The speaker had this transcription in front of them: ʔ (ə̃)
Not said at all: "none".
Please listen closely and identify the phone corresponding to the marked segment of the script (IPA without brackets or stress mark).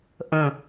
ə̃